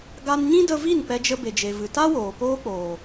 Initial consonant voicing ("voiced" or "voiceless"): voiced